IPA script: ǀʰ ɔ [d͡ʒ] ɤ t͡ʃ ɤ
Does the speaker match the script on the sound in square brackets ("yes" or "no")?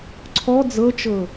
no